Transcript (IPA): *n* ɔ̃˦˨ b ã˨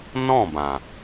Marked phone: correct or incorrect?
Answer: correct